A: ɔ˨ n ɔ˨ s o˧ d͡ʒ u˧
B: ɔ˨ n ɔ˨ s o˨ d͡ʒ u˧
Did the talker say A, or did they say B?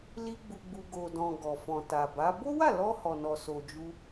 B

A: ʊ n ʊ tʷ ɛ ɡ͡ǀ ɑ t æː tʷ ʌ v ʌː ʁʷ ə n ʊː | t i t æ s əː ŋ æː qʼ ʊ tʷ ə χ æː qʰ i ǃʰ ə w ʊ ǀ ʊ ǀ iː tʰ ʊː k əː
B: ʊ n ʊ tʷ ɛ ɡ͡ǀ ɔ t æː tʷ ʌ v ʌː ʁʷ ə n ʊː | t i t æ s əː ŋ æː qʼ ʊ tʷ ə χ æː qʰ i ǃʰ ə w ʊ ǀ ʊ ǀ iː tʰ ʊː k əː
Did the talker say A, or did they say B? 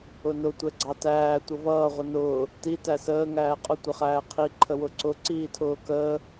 A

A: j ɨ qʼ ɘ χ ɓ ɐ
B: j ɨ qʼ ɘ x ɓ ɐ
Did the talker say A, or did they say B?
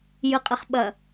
A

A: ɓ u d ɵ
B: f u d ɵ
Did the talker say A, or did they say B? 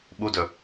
A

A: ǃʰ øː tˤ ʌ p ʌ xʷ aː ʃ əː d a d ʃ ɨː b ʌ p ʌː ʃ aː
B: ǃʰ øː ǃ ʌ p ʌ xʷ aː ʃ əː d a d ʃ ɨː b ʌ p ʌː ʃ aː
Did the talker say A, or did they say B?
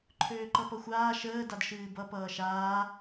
B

